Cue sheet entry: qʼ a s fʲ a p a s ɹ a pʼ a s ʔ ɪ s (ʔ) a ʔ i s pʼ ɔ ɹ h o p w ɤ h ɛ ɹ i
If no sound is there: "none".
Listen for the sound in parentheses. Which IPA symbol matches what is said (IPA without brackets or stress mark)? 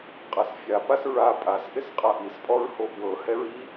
qʼ